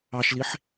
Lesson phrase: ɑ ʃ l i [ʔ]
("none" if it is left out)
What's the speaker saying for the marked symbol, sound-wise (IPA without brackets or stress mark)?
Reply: ħ